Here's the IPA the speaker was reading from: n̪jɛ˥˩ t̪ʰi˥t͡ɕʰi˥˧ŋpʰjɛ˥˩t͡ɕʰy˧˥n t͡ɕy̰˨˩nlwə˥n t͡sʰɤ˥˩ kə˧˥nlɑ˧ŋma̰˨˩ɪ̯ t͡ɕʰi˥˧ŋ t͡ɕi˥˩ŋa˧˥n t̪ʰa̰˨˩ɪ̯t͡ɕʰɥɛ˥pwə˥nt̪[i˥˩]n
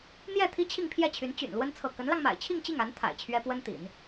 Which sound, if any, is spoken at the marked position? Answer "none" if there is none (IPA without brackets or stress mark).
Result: ḭ˨˩˦